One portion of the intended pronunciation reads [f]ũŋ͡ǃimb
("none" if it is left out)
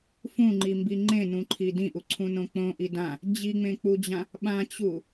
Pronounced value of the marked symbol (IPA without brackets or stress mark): f